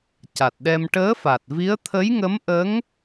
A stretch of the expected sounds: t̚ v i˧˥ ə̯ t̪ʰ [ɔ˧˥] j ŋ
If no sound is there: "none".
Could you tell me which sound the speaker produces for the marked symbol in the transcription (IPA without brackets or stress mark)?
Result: ə˧˥